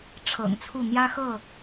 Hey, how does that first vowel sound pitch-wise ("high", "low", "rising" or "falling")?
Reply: low